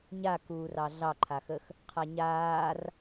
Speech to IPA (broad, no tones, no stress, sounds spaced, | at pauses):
ɲ a k uː r ɑ ɮ ɑ ǃʰ a x ə x | qʰ a ɲ aː r